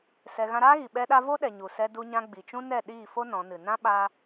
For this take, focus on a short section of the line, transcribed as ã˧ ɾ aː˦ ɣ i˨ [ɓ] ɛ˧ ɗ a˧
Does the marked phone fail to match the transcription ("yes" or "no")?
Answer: no